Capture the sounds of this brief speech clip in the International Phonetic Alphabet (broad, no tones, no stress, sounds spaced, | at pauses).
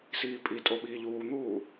s iː pʼ i tʼ o ɓ iː ʎ uː n̪ uː